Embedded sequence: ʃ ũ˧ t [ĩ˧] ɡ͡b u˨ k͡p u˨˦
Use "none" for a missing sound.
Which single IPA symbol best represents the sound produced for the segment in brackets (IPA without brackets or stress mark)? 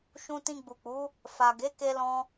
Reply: ĩ˧